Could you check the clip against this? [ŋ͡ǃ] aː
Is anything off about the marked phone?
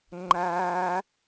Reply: no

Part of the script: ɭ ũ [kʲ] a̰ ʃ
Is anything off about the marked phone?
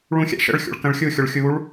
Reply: yes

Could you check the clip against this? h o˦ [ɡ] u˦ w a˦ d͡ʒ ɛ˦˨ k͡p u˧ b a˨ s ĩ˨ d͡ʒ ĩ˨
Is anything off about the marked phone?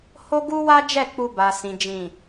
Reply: no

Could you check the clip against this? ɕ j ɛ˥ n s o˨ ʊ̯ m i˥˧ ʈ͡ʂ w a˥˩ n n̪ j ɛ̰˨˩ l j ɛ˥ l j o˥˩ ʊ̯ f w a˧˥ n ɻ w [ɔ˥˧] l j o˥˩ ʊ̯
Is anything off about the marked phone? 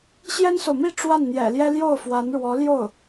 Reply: yes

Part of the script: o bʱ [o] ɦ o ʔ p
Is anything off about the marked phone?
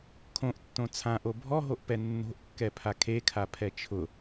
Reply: yes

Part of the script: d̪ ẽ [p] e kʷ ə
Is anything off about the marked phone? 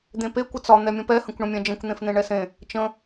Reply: no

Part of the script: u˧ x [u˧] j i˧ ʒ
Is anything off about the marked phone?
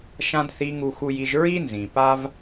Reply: no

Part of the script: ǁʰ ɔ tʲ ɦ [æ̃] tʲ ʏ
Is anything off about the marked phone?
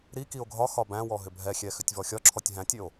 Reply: no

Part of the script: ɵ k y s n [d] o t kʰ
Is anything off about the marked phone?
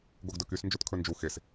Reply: yes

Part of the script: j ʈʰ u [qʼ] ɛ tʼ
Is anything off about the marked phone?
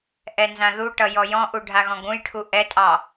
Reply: yes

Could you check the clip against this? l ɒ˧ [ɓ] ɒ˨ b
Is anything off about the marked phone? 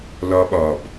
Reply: no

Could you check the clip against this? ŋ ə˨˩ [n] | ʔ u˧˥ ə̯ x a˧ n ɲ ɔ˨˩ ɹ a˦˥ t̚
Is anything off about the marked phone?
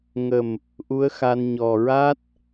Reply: yes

